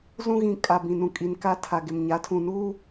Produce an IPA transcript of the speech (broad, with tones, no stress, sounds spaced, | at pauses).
z ũ˦ ɣ ĩ˨ kʼ a˨ b ĩ˨ n ũ˨ kʼ i˨ n k a˦ tʰ a˨ ɡ ɪ˨ m ɲ a˨˦ tʰ ũ˨ n uː˦